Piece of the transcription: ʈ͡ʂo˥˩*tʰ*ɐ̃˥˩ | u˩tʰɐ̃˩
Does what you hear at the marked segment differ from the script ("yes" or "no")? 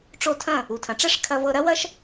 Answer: no